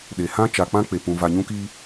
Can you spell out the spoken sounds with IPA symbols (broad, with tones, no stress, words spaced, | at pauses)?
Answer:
ɗe˨ hã˦t͡ʃa˨k͡pã˦ k͡pe˨pũ˨ va˨ ɲũ˦kiː˦